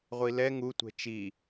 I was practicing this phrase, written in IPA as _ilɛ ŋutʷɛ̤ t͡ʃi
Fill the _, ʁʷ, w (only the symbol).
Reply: ʁʷ